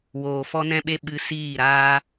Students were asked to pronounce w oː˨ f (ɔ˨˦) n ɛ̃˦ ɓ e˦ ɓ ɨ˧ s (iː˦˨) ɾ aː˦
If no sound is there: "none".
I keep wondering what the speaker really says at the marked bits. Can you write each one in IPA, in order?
ɔ˦, iː˦˨

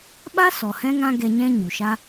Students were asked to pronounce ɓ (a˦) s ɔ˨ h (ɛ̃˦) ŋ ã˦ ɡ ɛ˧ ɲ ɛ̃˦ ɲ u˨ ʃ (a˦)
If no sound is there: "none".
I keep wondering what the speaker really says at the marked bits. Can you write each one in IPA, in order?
a˦, ɛ̃˦, a˦

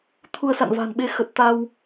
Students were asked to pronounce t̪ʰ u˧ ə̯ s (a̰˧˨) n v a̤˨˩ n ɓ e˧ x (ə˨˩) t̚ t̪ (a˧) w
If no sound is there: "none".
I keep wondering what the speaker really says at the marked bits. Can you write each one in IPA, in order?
a̰˧˨, ə˨˩, a˧

